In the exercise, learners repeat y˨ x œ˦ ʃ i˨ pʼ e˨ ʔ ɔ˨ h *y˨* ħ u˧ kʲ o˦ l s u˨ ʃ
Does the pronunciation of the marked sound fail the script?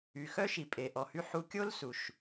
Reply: yes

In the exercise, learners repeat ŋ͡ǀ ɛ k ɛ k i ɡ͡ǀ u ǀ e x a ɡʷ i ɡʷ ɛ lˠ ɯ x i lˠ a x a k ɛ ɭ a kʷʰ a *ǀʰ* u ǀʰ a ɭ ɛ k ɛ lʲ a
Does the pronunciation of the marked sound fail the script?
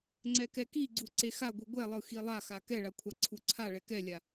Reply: no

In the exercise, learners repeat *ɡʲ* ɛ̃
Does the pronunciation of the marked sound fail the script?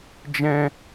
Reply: yes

